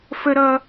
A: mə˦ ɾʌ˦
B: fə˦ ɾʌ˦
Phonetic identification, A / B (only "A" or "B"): B